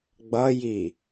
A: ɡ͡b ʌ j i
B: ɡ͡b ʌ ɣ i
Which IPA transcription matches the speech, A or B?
A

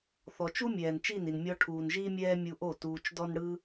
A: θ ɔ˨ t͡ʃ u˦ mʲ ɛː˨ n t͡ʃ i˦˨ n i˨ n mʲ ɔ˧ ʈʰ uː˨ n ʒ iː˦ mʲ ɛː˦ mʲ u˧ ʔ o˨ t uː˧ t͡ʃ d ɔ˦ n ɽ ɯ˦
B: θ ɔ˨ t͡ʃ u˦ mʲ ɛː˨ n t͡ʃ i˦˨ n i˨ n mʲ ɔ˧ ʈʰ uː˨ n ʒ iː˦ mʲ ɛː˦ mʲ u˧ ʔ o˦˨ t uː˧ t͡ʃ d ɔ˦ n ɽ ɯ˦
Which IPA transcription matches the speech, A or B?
B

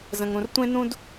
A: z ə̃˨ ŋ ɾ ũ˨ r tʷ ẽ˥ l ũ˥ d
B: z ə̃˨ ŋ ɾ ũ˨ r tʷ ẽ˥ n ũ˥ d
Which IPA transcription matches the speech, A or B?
B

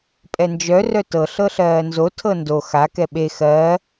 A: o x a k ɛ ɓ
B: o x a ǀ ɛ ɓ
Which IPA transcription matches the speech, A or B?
A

